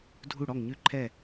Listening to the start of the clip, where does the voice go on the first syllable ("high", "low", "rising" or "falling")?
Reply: falling